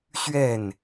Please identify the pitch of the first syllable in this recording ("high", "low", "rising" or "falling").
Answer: falling